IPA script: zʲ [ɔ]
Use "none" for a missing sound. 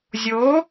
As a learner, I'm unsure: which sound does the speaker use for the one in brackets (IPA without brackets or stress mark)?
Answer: o